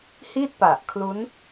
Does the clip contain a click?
no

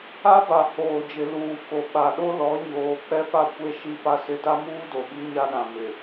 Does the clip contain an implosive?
yes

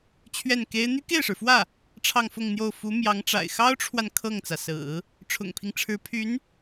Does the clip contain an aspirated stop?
yes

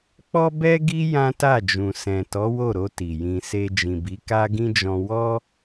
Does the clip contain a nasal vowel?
yes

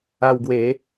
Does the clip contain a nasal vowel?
no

